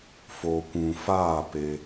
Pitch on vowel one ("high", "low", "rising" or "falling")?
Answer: low